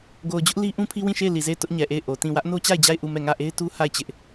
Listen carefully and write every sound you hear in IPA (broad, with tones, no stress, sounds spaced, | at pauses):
ɡ o˨ ʊ̯ d͡ʑ ʊ˦ ʔ l i˦ ʔ ũ˦ pʰ i˦ w ĩ˦˨ ʃ e˦˨ ɪ̯ l i˨ z e˦˨ ɪ̯ t ʊ˦ ʔ ɲ ɛ˨ ʔ e˦˨ ɪ̯ ʔ o˨ t ĩ˦˨ w ä˦ ʔ n o˦ t͡ɕ a˦˨ ɪ̯ d͡ʑ a˦˨ ɪ̯ ʔ u˦˨ m ɛ˦˨ ŋ ä˦˨ ʔ e˦ ɪ̯ t u˦ h a˦˨ ɪ̯ t͡ɕ ɪ˦ ʔ